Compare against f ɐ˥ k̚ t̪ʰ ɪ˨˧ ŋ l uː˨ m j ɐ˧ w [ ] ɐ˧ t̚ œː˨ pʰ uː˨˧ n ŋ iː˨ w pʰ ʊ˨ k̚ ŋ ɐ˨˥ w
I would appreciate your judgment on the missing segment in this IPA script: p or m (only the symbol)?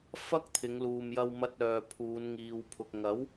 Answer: m